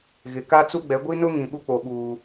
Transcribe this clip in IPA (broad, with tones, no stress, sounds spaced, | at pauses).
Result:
ɣ ɪ˨ k a˦ t͡s u˦ ɡ͡b ɛ˨˦ ɡʷ i˦ n ʊ˦ ŋ ĩ˨ ɓ u˦ k͡p o˨ ɓ uː˨